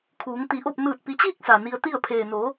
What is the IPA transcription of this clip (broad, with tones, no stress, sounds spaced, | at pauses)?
kʰ uː˩˧ ŋ t̪ i˩˧ ʔ o˥˨ p̚ n ɯː˧˩ t̚ p i˩˧ t͡ɕ iː˥˨ k̚ s a˩ n i˧ ə̯ t̪ i˥˨ ə̯ pʰ eː˩ n o˩˧